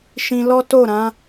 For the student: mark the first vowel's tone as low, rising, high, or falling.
low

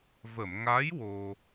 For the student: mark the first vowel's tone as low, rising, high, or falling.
low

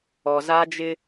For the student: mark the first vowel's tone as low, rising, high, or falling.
low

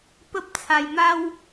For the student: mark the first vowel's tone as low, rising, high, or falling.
high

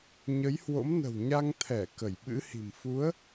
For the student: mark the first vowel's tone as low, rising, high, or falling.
rising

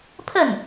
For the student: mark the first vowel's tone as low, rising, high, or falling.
falling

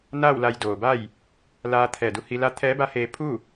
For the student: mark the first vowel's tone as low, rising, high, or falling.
falling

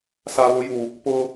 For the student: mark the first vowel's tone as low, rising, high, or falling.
low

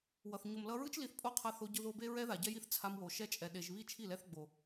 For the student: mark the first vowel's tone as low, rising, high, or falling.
low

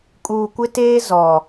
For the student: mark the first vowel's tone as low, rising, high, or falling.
low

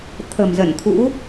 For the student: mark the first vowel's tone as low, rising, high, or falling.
low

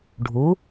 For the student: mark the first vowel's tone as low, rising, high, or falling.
rising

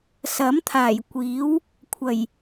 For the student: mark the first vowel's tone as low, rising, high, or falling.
rising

